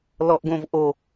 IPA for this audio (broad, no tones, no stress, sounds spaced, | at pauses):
l ɔ ʔ ɡ õ v ʔ o